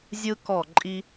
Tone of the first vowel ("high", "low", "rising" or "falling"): high